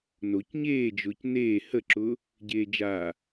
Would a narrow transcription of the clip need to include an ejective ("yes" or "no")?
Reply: no